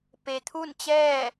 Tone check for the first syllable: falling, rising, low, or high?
low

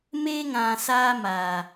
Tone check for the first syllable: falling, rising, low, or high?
high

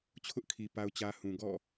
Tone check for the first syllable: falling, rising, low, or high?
high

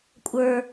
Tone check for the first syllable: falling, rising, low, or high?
high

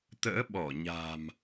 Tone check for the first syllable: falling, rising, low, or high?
rising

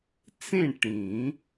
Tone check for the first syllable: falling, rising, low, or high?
falling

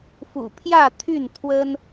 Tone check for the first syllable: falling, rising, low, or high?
low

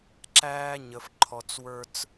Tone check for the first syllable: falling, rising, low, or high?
high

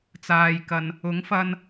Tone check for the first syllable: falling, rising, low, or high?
low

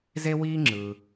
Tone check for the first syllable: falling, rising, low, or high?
high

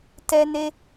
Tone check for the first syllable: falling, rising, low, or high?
high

